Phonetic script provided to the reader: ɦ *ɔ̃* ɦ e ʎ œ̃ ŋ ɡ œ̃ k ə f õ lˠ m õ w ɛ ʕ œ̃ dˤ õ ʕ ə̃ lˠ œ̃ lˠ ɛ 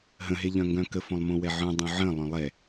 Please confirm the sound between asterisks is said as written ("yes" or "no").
no